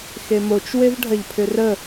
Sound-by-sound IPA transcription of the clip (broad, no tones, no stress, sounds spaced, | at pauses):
x e m o t͡ʃ w e v ɖʱ ɐ ʎ pʰ ʏ r ə